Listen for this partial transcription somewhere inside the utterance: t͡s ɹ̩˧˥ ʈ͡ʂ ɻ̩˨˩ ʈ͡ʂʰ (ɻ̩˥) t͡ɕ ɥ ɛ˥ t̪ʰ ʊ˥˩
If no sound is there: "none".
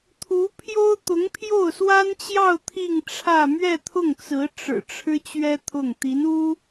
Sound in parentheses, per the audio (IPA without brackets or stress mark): ɻ̩˥